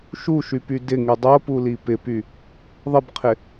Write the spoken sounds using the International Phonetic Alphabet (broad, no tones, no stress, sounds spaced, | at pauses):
ʃ u ʃ y p y d ɪ ŋ y dˤ o p u l i p ɪ p y | ðˤ ə b qʰ ɪ